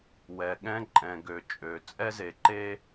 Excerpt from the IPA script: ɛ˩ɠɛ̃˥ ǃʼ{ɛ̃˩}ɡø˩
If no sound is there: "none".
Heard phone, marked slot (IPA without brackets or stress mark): ɛ̃˩